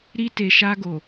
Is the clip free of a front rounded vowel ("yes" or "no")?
yes